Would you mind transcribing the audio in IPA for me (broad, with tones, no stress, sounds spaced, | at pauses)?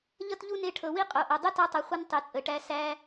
ʎ ʌ˦ t ʎ u˦ n e˧ ʈʰ ɤ˨ w i˦ qʼ o˨ ʔ ɤ˨ dˤ ə˦ t ɔ˧ tˤ ɤ˨ χʷ ʌ˦ n tˤ i˨ t͡sʼ ə˨ ʈ æ˧ s æ˧